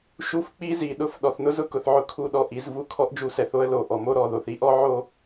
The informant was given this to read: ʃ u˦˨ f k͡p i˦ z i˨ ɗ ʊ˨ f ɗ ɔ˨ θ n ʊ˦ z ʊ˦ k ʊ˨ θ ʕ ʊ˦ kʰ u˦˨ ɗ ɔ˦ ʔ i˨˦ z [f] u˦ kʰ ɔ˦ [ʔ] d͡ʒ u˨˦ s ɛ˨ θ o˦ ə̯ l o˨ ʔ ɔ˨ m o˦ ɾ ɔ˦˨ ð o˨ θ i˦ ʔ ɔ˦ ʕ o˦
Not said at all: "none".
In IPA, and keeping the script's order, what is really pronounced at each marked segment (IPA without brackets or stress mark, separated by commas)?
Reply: v, ʔ